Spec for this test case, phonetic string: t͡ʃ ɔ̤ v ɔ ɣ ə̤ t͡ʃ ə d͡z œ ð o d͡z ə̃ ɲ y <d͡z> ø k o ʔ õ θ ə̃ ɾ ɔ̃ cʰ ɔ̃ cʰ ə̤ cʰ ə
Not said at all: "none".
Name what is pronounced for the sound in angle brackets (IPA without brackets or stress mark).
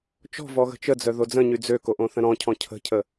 d͡z